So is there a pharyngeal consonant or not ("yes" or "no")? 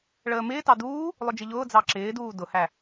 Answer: no